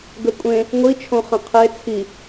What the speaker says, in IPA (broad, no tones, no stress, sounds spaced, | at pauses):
ɡ ə kʷʼ ẽ | ŋʷ i t͡ʃʰ õ χ ə̃ qʰ e t͡sʰ i